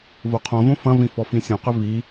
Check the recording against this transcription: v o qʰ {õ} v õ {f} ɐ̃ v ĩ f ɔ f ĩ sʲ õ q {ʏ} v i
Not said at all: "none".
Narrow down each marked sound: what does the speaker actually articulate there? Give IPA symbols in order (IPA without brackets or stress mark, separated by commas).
õ, f, ʏ